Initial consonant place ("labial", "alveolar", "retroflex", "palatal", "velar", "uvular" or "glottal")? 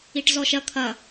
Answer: retroflex